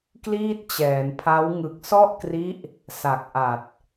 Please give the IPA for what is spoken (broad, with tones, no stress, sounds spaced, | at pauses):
k l iː˥˩ t̚ t͡ɕ ɛː˩˦ n pʰ a˦˥ w ŋ ɯ˨˩ k̚ s ɔ˥˩ ʔ k r i˦˥ ʔ | s a˨˩ k̚ ʔ a˨˩ t̚